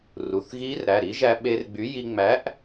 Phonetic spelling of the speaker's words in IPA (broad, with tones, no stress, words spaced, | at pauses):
ru˩˧˩θɣiː˦˥rɾæ˩˧˩ ɾi˨˥ʒæ˧ ɓe˧rɡ͡by˨˥ji˧ ŋ͡mæ˨˥ʔ